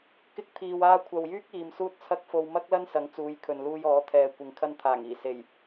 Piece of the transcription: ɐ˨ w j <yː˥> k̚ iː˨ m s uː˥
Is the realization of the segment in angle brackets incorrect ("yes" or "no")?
no